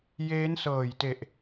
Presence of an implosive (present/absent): absent